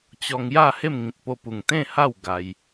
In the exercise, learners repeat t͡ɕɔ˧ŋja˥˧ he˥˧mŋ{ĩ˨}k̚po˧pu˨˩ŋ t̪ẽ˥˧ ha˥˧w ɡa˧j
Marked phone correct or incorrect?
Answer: correct